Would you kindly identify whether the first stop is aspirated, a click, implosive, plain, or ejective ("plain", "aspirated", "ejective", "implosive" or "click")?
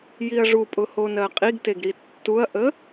ejective